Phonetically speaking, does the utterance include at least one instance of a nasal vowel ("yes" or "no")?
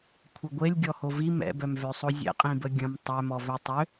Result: yes